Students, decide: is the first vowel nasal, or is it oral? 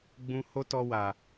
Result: nasal